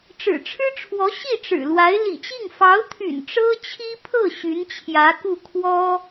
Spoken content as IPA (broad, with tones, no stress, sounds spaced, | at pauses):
ʈ͡ʂ ɻ̩˨˩ ʈ͡ʂʰ ɻ̩˥ ʈ͡ʂʰ w ɔ˧˥ ɕ i˥˩ ʈ͡ʂ ɻ̩˨˩ l w a˧˥ ɪ̯ l ḭ˨˩ t͡ɕ i˥˩ ŋ f ɑ˧˥ ʊ̯ t̪ʰ y̰˨˩ n ʈ͡ʂ ɤ˥ t͡ɕʰ i˥ pʰ ɤ˥˩ ɕ y˧˥ n t͡ɕʰ j ä˧˥ k u˥˩ kʰ w ɔ˥